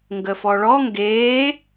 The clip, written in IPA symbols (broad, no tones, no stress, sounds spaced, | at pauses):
ŋ ɡ ə f ɔ ɭ ɔ ŋ ɡ eː